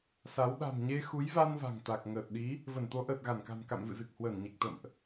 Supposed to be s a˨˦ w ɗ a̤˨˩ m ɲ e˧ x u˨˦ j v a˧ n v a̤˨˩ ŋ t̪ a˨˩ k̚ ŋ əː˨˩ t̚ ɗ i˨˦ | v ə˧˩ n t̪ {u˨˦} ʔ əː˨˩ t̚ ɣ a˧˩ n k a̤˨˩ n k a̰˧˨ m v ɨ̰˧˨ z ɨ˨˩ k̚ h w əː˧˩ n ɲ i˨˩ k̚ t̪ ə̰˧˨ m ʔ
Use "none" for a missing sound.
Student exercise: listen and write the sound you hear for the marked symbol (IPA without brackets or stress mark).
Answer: o˨˦